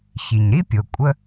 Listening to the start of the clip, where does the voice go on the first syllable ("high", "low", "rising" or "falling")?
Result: low